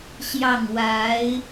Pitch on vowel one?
falling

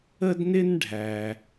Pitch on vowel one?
high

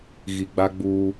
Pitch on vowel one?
low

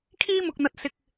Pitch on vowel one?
high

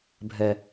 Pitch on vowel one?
high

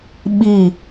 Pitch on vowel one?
falling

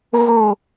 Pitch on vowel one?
low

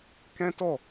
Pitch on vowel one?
high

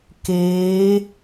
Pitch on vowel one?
rising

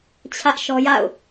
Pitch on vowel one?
high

